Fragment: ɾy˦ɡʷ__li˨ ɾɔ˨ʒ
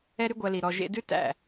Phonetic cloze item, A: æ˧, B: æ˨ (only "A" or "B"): A